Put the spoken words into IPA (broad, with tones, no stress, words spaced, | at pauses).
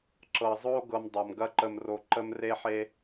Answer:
ǁɤ˨zˤo˦ ɡɤ˧mdˤɤ˨m ɡɐ˧ǃə˨m ro˨ǃə˧mre˧ħe˧